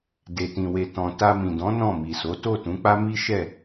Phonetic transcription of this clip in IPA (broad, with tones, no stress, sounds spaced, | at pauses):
d e˨ t ĩ˨ w e˨ t ɔ̃˨ t a˧ m ĩ˨ d ɔ̃˨˦ n ɔ̃˦˨ m i˨ s o˨˦ t o˦˨ t ũ˨˦ k͡p a˦ m i˦ ʃ ɛ˦˨